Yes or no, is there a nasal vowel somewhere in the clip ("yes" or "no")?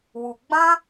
yes